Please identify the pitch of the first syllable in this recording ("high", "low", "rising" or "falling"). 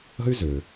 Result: high